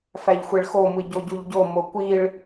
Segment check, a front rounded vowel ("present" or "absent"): absent